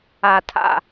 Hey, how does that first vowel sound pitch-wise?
low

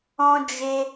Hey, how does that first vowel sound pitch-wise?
high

